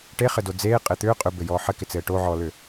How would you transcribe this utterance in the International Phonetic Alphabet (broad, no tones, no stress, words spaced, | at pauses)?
ʈeχɘdo d͡zeːqʼɪ t̪ʏː qʼʏbɘjɔː ħɘkɪt͡sɘː ʈoʕɔːlʏ